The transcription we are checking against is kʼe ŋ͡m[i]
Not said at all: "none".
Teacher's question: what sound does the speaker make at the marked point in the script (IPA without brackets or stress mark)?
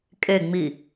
i